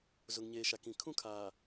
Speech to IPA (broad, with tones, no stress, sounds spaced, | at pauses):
z ʊ˨ ŋ ɲ eː˨ ʃ a˨ k ĩ˨ kʰ ũ˦ kʰ aː˨